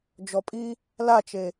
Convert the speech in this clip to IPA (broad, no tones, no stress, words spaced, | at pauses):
d͡ʒɔpʼi | lat͡ʃe